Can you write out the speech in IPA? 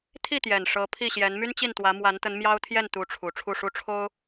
t̪ʰ i˥˩ t̪ j ɛ˨˩ n ʂ ɤ˧˥ pʰ i˥˩ ɕ j ɛ˧˥ n m y˥ n t͡ɕ i˥˩ n t̪ w ä˧˥ m w a˧˥ n t̪ ə˧˥ n m j ɑ˥ ʊ̯ t̪ʰ j ɛ˥˩ n t̪ u˧˥ ʈ͡ʂʰ u˨˩ ʈ͡ʂʰ u˥˩ ʂ u˥ ʈ͡ʂʰ o˥ ʊ̯

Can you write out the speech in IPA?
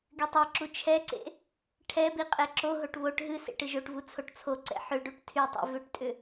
ɡ y tˤ e ǁ u t͡ʃʰ ɛ ǀ ḛ | ʈʰ ɛ b i qʼ ɛ ǁ o ɦ o ʈ β o ʈ ɦ ɨ s ḛ ʈ ɨ ʒ o ʈ v u t͡sʰ o ʈ t͡sʰ o ǀ ɛ̰ ħ ʏ ɖ u ʈ tʰ y tˤ ḛ v ʏ ʈ tʼ ʏ

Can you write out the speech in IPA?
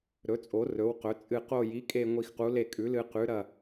ɾ ɵ˩˥ t͡sʼ o˩˥ r ɵ˩˥ w q ɵ˩˥ t͡sʼ ɨ˧˩ q o˧˩ j i˩˥ kʼ e˧˩ ŋʷ i˧˩ x q u˩˥ l e˧˩ kʼ ʉ˩˥ l ɨ˧˩ q ʉ˩˥ ɾ ɐ˧˩

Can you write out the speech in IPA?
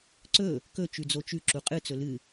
ǀ ɵ | k ɵ t͡ʃ ʉ d͡z o t͡ʃ ʉ ǁ u qʼ ɨ t͡s ɵ l ɨ

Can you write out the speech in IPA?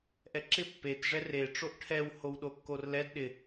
ʔ ɛ ǁ ɪ pː e t ʐ ɛ r e ʈ͡ʂ o ʔ ʈʰ ɛ w h o w ɗ o kː o r l ɛ d ɗ ɪ

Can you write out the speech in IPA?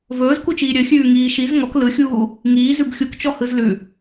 v ɵː z k u t͡ʃ iː ɾʲ ɵ xʲ ʉː ŋ iː ʃ i z ŋ ɔ k l ɯ xʲ uː | ŋ iː z ʉ b xʲ u k t͡ʃ ɔ h ɯ z l ʉ

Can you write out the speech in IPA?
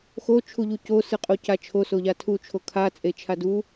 x o t͡ʃʰ u ʎ u c o s ɯ qʼ o c a t͡ʃʰ o s o ʎ a tʰ u t͡ʃʰ o kʰ a t͡sʼ e t͡ʃʰ a d u

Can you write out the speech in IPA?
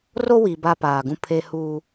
r o˦ w i˨ b a˦ p aː˨ ɡ ũ˦ pʰ e˦ h uː˦

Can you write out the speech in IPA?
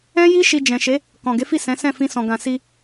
ɛ̃˦ j i˦ ʃ i˧ d͡ʒ ɛ̃˨ ʃ e˨˦ | k ɔ̃˨ ɡ e˨˦ f i˦˨ s ɛ̃˨˦ s ɛ̃˦˨ f ĩ˧ s ɔ̃˨ ɡ ã˨ s i˧

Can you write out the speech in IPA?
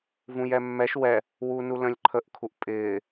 v ũ j ɛ mː ɛ ʃ w ɛ | w u n u l ə̃ lʲ ǃʰ ə ʔ kʰ u ʔ pʼ ɪː

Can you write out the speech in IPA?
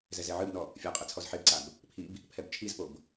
z ɛ z ɛ ʕ ɨ b n ɔ | fʲ a qʼ ɛ t͡sʰ ɔ z ħ e b ǀ a b | pʰ i b | pʰ ɛ b t͡ʃʰ i z p o b

